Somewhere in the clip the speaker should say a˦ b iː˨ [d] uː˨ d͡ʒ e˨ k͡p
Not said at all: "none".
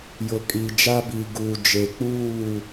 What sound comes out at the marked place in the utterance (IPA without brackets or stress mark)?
ɡ